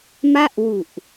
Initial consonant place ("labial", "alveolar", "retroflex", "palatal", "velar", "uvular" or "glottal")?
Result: labial